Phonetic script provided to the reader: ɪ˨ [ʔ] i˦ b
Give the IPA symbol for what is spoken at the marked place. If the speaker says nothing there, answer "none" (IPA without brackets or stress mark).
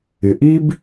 ʔ